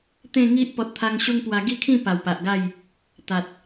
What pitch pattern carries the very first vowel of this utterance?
falling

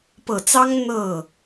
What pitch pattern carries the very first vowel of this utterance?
low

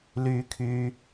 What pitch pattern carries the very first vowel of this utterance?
high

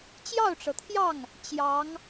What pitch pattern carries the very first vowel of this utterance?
falling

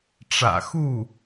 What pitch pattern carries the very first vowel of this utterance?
low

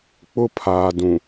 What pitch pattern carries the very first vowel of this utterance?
high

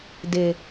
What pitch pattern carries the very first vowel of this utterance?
low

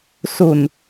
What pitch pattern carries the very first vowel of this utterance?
low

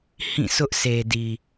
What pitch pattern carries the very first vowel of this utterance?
falling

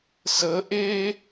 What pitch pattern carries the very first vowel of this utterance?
rising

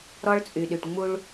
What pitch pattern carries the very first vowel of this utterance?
high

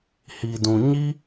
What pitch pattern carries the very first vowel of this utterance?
low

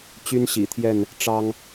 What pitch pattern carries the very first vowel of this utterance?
high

